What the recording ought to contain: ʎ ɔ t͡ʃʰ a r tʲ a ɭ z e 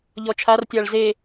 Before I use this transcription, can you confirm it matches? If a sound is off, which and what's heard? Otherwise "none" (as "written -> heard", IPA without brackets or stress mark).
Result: none